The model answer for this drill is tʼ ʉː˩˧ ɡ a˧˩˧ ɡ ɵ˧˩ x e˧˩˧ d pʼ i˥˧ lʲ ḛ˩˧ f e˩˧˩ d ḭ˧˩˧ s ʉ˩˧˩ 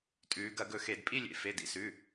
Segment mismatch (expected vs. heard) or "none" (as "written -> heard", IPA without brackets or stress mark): a˧˩˧ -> ɐ˧˩˧